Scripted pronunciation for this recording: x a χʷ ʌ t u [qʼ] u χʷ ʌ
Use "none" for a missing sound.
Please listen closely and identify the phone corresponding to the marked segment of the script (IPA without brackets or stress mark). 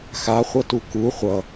k